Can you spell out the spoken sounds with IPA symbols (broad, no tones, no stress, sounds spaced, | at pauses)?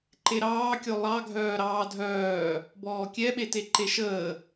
ǃ e ɾ ɑː kʲ o lˠ ɑ ɡʱ œː ɾ ɑː dʱ œː | b ɔː kʲ ɛ ɓ e t e ǃ e ʃ əː